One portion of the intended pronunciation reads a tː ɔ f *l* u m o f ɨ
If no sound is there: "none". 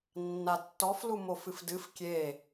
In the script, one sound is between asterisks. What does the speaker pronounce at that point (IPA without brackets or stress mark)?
l